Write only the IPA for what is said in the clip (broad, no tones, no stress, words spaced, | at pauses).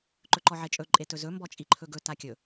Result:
ǃɵǃɔʕet͡ʃʼɵ ǃʼetɵzɵ mbɔt͡ʃʼiǃʰɵɡɵ takʲɵ